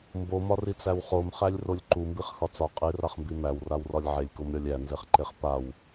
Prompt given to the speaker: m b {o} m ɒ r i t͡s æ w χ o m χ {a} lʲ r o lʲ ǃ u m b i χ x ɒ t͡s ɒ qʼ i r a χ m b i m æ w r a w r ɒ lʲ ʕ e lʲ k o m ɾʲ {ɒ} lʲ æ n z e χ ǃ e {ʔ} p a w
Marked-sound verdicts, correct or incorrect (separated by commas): correct, incorrect, correct, incorrect